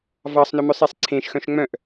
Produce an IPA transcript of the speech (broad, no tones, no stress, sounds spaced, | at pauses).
v ɑ sˤ n ɵ m œ sˤ e sˤ ǀʰ ẽ ʃ x œ̃ ʃ ŋ͡m œ̃ ʔ